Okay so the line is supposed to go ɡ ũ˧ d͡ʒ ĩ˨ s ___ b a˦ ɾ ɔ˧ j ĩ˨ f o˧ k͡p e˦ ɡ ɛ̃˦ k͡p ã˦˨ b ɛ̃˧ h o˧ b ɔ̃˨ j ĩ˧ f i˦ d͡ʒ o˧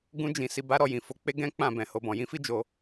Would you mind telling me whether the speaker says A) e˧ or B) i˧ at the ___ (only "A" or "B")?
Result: B